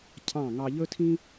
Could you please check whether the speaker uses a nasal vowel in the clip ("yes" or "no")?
yes